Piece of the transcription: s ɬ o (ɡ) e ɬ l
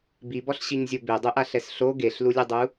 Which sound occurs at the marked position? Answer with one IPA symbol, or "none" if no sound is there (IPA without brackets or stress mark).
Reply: ɡ